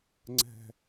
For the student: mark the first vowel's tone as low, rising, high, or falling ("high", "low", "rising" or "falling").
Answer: high